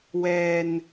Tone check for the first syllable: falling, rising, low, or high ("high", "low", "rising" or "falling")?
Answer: low